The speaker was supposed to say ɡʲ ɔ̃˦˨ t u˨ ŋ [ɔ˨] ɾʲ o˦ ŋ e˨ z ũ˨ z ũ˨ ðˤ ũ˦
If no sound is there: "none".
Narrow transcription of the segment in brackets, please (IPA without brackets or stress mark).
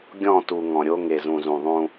ɔ̃˨